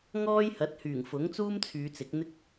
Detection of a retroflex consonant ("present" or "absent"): absent